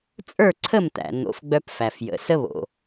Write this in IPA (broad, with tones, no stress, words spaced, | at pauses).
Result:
t͡sʼə˞˥˩ǀʰə˥˩mt̪æ̰˩ n̪o̰˩˥fɡ͡bœ˧pfæ˩fjə̰˩ sə˥βo̰˩